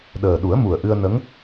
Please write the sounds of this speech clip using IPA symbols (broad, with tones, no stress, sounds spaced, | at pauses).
ɗ əː˨˩ ɗ u˨˩˦ ə̯ m u˨˩ ə̯ ʔ ɨ˧ ə̯ n ə˧˥ ŋ